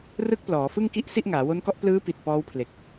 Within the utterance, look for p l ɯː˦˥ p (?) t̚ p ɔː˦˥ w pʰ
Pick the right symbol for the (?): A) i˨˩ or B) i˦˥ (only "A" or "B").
A